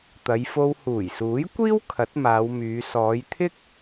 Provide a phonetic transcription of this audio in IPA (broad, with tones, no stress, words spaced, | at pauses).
t̪ɐ˨˧jfo˧w huː˨˩jsuː˨˥jkʷiː˥w kʰɐ˨˥t̚maː˨˧wmyː˨˧ sɔː˨˧jt̪ʰɪ˥k̚